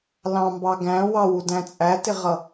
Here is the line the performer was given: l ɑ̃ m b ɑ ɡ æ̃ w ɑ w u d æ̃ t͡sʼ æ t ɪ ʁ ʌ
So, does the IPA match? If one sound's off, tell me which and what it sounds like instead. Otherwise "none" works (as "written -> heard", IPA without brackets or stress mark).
none